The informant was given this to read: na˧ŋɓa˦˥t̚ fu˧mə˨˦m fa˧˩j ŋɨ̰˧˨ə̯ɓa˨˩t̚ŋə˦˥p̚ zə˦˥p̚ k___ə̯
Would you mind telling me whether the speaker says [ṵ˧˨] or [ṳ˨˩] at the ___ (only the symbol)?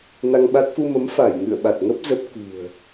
ṳ˨˩